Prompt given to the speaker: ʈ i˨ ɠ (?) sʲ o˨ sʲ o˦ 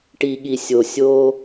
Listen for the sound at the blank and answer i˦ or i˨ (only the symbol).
i˨